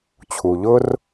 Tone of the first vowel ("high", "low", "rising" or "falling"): low